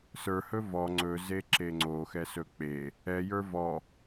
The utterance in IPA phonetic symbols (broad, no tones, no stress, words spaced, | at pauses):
sə˞hɵ vɔ ŋ͡ǀɵze ǁeŋ͡ǀoxɛ sɵk͡pe | ɛjə˞ vɔ